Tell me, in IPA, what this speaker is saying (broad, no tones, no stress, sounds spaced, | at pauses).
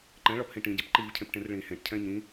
ǃ ɛ̃ ɭ ɒ p h ĩ ʈ ĩ ɟ e p ǃ i v cʰ ẽ p ʈ ẽ r ɭ ĩ h ẽ ʈ cʰ ɛ̃ ɲ ĩ